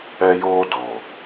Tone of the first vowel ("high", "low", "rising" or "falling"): high